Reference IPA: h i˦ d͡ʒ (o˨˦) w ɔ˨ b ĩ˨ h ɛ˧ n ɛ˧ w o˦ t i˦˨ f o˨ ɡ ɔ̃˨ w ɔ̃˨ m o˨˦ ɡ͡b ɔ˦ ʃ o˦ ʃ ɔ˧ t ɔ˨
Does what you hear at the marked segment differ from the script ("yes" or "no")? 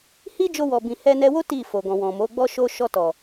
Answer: yes